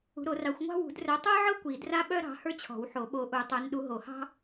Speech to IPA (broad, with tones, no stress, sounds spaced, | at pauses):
ṳ˨˦ ɾ o˨˩˦ r ɑ˨˦ xʷ ŋʷ ɑ̤˥ w ṳ˨˩˦ d r œ˨˦ tˤ ə˞˥ ʕ ɤ˥ kʷ i˨˩˦ d r a˥ ɓ œ˥ ɾ ɑ̤˨˦ h ə˞˥ t͡ɕʰ ɔ̤˨˩˦ w ħ o˨˩˦ ɓ o˨˦ ʔ u˨˩˦ tˤ œ˨˦ n ɗ u˨˦ ɦ o˨˩˦ h ɑ̤˥